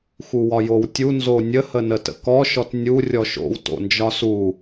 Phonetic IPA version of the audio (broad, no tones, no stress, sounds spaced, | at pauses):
x u w ɒ j o w tʲ u n z o nʲ ə h ə n ə t ə̰ k ɔ ʃ ɔ t nʲ u rʲ ɔ ʃ o̰ w t o̰ n d͡ʒ ɒ s u